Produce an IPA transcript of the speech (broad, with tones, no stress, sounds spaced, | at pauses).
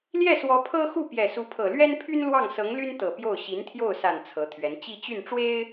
l j ɛ˥˩ s w ɔ˧˥ pʰ ɤ˥ x u˥˩ p j ɛ˨˩ s u˧˥ pʰ ɤ˨˩ l ɥ ɛ˥ n pʰ y˥ n l w ɑ˥˩ ŋ s ɤ˧˥ ŋ l y˥ n t̪ ɤ˨˩ p j o˥˩ ʊ̯ ɕ i˧˥ n t̪ʰ j o˥˩ ʊ̯ s a˨˩ n t͡sʰ ɤ˧˥ t̪ʰ ɥ ɛ˧˥ n t͡ɕ i˥˧ t͡ɕ y˥˩ n ʈ͡ʂ w e˥ ɪ̯